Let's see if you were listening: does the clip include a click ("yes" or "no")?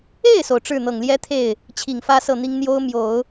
no